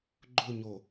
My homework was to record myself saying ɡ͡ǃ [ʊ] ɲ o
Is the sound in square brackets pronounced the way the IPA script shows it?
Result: yes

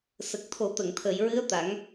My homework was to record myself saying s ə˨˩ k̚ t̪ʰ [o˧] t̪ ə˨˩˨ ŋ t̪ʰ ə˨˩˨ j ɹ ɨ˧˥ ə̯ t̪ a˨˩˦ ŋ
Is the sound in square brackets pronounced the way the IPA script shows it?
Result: no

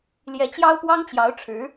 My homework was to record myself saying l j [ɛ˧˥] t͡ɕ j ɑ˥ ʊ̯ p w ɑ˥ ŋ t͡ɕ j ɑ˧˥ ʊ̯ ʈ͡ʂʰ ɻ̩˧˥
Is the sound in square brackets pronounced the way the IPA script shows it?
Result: yes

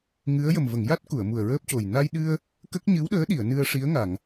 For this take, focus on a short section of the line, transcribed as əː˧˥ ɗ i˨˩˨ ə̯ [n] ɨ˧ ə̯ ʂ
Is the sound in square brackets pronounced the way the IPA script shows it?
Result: yes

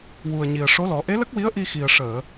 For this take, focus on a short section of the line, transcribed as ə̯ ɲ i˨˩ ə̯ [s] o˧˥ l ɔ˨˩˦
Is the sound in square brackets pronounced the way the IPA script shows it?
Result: no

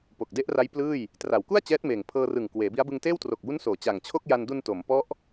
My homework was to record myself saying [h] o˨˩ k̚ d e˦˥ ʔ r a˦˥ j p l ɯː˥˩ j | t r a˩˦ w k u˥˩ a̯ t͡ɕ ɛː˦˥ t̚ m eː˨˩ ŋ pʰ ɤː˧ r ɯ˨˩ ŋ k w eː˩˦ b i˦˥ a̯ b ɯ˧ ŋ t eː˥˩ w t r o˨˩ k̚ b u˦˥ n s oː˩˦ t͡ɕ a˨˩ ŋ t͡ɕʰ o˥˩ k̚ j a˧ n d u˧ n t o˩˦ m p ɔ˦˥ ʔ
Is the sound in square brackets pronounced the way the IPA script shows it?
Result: no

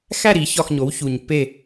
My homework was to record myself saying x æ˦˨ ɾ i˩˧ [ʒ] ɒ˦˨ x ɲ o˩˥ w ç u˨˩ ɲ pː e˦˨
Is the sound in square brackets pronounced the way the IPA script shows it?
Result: no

